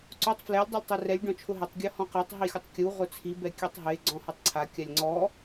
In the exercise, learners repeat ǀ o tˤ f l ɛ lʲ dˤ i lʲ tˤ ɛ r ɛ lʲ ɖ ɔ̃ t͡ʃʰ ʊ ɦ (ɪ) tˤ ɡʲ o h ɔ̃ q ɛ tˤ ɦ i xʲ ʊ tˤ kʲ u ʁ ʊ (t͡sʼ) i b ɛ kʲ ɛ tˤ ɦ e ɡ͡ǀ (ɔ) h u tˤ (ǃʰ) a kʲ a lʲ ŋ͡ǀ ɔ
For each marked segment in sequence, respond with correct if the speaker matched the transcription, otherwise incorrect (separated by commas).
correct, incorrect, incorrect, incorrect